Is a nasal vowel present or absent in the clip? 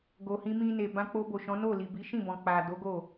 present